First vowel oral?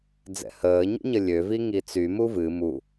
yes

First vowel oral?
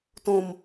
no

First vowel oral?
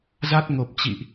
yes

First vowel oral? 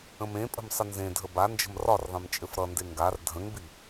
no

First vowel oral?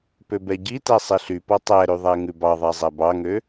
yes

